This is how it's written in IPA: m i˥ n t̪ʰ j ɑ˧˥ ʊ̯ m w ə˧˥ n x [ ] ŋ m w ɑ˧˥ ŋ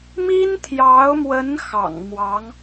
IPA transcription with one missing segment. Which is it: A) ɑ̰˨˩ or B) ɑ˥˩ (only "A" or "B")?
A